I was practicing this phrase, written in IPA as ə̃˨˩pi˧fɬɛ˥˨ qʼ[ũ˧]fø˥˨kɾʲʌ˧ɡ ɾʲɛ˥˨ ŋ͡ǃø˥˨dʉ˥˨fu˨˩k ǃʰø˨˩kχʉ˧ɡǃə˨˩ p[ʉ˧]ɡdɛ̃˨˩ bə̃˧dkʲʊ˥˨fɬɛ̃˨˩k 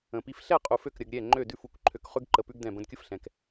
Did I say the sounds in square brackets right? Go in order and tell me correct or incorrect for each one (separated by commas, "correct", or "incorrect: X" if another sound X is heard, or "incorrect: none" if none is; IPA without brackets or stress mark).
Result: incorrect: u˧, correct